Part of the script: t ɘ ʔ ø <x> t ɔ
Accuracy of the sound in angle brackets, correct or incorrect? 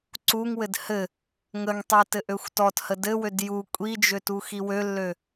incorrect